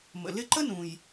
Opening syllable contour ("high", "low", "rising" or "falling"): low